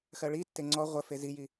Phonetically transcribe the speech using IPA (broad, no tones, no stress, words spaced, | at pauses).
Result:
xɜɭitːe ŋ͡ǀɔ ʁʷə feziji